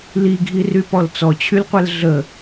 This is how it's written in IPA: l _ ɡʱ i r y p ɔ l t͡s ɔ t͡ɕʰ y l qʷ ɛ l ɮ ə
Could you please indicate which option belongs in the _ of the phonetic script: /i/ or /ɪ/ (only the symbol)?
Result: i